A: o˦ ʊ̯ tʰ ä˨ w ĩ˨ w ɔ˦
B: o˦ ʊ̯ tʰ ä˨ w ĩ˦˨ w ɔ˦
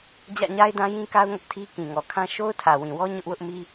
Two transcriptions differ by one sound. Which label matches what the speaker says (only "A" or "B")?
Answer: A